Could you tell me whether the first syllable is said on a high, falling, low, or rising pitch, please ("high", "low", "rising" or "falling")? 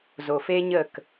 low